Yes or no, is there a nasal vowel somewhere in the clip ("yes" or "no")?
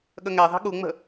no